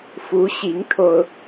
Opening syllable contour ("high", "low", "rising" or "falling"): rising